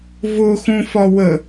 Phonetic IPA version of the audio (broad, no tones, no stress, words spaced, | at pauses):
vʊ xũfɒ wə